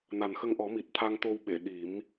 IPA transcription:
na˨˩nxə˧ŋʔɔ˨˩˦ mi˨˩t̚ t̪ʰa˧ŋ t̪o˧wɓe˨˩˨ ɗi˨˩˦m

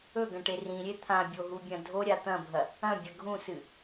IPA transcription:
ɵɡɐ̃ʈe rĩɾʲe t̪ʰãbʲoɦubʲɐ̃ dʱoɾʲa t̪ɐ̃bʱɐ | ɐ̃bʲɐ ɡʱũsɨ

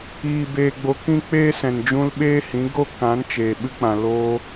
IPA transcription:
iː˨ beː˨ɡ͡bo˨ kĩ˦k͡peː˦ sɛ̃˨nd͡ʒũ˧lɓeː˦hĩ˨˦ ɡo˦ kã˨˦nt͡ʃeː˨ɓɨ˧k͡pã˨ lo˧

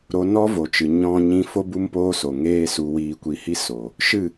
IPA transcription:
ɾo˧nɔ˦vo˨t͡ʃɨ˨ ɲɔ̃˦ɲĩ˦ fo˦ bu˦mpoː˦ so˨ŋeː˦su˧ wiː˧kʷi˧hi˦ so˨ | ʃɨ˦˨

